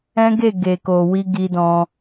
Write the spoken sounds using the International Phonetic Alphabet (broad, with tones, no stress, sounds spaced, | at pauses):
ɛ̃˦ ɡ e˦˨ ɡ e˨ k o˨ w i˧ ɡ i˧ d ɔ̃˧